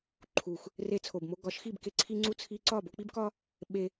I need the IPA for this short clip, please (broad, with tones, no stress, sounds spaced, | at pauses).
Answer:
ǃʰ u˨ x | r e˧ t͡sʰ o˨ b m o˧ ɡ ɒ˨˦ ʃ x i˦˨ b k e˧ ǀʰ i˧ ŋ͡ǀ u˧ t͡sʰ i˧ ǀ ɒ˦˨ b o˧ k͡p i˦ b k ɒ˦ | ɓ e˧